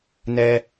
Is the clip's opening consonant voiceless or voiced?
voiced